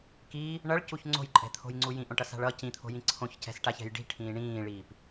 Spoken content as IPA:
k iː | ɳ ʌ ɭ c u ç ŋ͡ǀ o̤ j ǃʼ ɛ̤ t̪ʰ o̤ j ŋ͡ǀ u j ĩ ʔ õ ʈ ʌ s a̤ ɭ ʌ c ĩ t̪ʰ o̤ j ĩ ǀʰ õ ç c ɛ̤ s ʈ a ç ɛ̤ j ɖ i̤ ʈʰ ĩː ɳ ĩː ɭ iː p

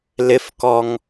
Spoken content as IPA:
l ɪ f k ɔ ŋ

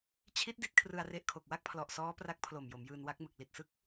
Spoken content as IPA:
t͡ɕʰ i˦˥ t̚ d i˦˥ t̚ kʰ r ɯ˧ a̯ r e˦˥ ʔ kʰ o˨˩ k̚ w a˥˩ k̚ pʰ l ɔ˨˩ ʔ s ɔː˦˥ p r a˦˥ k̚ pʰ l o˨˩ m j o˩˦ m j ɯː˧ n w a˦˥ k̚ m ɯ˨˩ k̚ l i˨˩ t̚ s ɯ˦˥ k̚

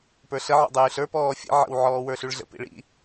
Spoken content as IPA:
p ə˞ ɬ ə ʕ ɔ̰ dˤ yː ɬ ə˞ p ɔː fʲ ə̰ ʕ ə̰ w ʕ ɔː w ə˞ ɬ y ɭ ɮ ə̰ p ḭ ɭ ḭ

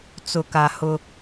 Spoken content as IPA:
t͡s ʊ˨ k a˨ h ʊ˦

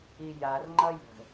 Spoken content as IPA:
i j a r ŋ͡ǃ ʌ j ə̤

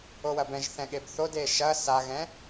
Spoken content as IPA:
o w ɐ b ɛ̃ ʒ θ ɛ̃ ɠ e b θ o d e ʃ ɐ s a ɣ ɛ̃

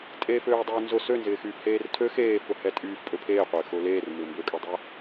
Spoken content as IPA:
tʼ eː f øː dˤ øː n z ʊ s ø n z ɪː x yː f h eː r tʰ ø x eː f ʊ h ɛ tʼ yː f pʼ ø pʰ eː qʷ ɪː x ʊː l eː r m ɪː m b ø kʼ ø dˤ ɛ

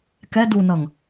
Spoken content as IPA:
k ɛ d u n ʌ ŋ

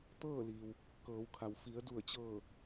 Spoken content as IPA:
t̪ ɤː˥˨ l iː˩ w | k ɤː˩˧ w kʰ a˩ w f i˩˧ ə̯ d u˧˩ ə̯ t͡ɕ ɤː˧˩

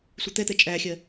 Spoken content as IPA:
sʷ i t̪ ɛ t̪ ɛ t͡ʃʼ æ xʲ ɜ

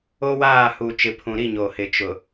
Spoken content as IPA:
o˦ w aː˦˨ h u˨ t͡ʃ ɪ˨ pʰ ũ˨ ɾ i˦˨ ɲ o˨ h ɪ˨ t͡ʃ ʊ˨

